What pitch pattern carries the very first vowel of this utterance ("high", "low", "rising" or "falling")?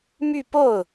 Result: falling